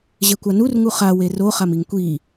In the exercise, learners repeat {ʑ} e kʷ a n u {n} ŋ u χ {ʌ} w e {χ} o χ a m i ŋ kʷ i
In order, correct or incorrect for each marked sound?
correct, incorrect: r, incorrect: a, incorrect: r

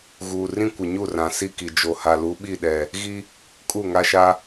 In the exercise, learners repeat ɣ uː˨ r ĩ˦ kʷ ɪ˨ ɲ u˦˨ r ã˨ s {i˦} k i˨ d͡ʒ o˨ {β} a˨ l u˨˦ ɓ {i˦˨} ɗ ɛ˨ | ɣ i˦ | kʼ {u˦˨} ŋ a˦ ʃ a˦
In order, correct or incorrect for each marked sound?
incorrect: i˦˨, incorrect: h, correct, correct

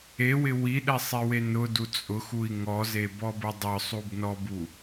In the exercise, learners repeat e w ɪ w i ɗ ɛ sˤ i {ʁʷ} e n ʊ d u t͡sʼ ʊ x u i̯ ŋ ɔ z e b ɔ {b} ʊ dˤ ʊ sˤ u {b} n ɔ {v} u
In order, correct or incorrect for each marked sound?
incorrect: w, correct, correct, incorrect: b

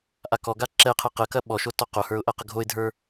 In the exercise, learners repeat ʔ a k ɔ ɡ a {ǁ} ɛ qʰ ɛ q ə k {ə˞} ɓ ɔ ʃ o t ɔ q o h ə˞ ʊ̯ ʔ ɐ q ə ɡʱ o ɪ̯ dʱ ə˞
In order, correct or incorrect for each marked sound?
correct, incorrect: ɐ

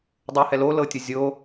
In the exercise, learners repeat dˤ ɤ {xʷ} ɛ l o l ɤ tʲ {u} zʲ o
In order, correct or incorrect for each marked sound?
incorrect: h, correct

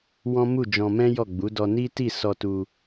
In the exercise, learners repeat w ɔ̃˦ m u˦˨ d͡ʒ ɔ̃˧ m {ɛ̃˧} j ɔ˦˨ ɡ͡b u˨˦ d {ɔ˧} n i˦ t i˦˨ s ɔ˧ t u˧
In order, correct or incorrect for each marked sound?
incorrect: ɛ̃˦, correct

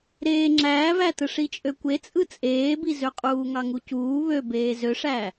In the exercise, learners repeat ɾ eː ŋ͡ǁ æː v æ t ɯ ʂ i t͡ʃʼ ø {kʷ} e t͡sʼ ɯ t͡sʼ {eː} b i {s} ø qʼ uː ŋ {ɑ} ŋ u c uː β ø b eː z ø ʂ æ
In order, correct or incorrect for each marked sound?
correct, correct, incorrect: z, correct

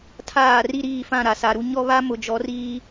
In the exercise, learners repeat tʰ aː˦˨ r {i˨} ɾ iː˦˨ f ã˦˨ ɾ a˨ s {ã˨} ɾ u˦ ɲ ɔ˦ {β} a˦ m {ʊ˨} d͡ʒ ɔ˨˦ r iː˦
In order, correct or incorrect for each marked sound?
incorrect: i˦, incorrect: a˨, correct, correct

